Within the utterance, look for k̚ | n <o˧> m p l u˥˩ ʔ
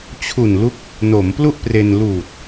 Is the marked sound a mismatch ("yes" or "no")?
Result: yes